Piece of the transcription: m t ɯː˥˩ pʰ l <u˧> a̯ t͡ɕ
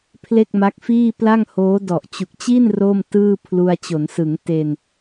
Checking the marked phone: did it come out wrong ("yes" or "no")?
no